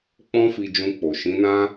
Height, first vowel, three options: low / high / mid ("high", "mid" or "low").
mid